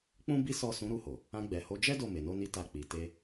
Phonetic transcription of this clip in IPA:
k͡pũ˦ bi˦sɔ˦˨ sũ˨˦ɾu˧ho˨ | ã˧ɡ͡bɛ˨ho˨˦ d͡ʒɛ˦ do˦˨me˨no˧ni˧ ta˧k͡pi˨ te˧

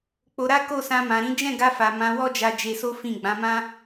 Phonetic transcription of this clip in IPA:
k͡po˧ɾa˦ ko˦˨sã˧ mã˨ɾĩ˨˦ d͡ʒɛ̃˦˨ɡa˧fa˨ mã˧wɔ˦d͡ʒa˧ d͡ʒe˧so˦fĩ˦˨ ɡ͡bã˨˦mã˦

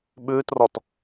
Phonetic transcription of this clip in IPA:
ɓʉːtrɔt

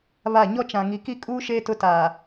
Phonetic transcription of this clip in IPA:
βa˦˨ ɲɔ˦t͡ʃã˨ ŋi˨ki˦kʼuː˦ ʃeː˦ tʊ˦taː˨

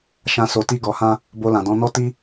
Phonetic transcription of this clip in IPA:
ʃã˦ so˧ti˦ɡɔ˧hã˦ | bo˧lã˨dɔ̃˧nɔ˦ ti˦

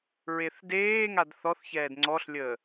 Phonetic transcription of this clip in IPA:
ɹeθdeːŋad θɔθçɛːd ŋ͡ǀɔɬlʲəː

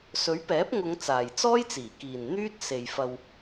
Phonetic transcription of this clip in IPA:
sɵ˨˥ɥpɛː˨˥p̚ŋʊ˨˧ŋ t͡saː˨jt͡sɔː˥jt͡siː˨˩kiː˨n n̪yː˥t̚ se˨jfɐ˧w

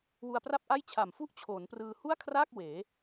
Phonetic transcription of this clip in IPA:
wu˧a̯pra˥˩p̚ʔa˥˩j t͡ɕʰa˨˩mfu˥˩ʔ t͡ɕʰoː˩˦nprɯː˧ hu˥˩a̯kʰraː˥˩k̚ weː˩˦

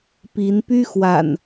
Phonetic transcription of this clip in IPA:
pi˨˦n py˦xwa̰˨˩n

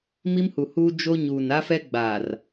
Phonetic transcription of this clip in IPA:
mi˦mhu˨huː˦ d͡ʒo˦ ɲuː˨na˦fɛ˦ ɡ͡baː˨r

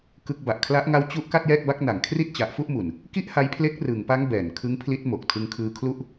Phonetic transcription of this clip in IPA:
kɯ˦˥k̚ ba˨˩ʔkʰla˦˥ʔŋa˦˥w t͡ɕu˦˥ʔ ka˥˩t̚jɛː˥˩k̚ba˦˥k̚na˨˩ŋ kʰri˥˩t̚t͡ɕa˨˩ʔfu˥˩ʔmu˨˩n | ki˥˩ʔha˦˥jpʰle˦˥k̚ rɯ˩˦ŋpa˦˥ŋ bɛː˨˩n kʰɯ˦˥ŋpʰli˦˥t̚ mo˨˩k̚ tʰɯ˧ŋkʰɯː˧kʰlu˥˩ʔ

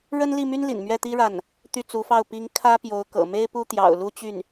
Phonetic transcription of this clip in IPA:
ɻə˥nli˥˩my˥n lḭ˨˩nmɥɛ˥˩t̪i˥ ɻa˥˩n | t̪y˥˩t͡su˧˥fɑ˥˩ʊ̯ pi˧˥ŋ kʰä˥pjo˧˥ʊ̯ kɤ̰˨˩me˥ɪ̯ pu˥t̪jɑ̰˨˩ʊ̯lu˥t͡ɕy˥˩n

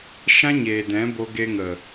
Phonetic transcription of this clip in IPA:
ʃã˦ɲeː˨dɛ̃˨˦bo˧ ɡe˧ŋə˨

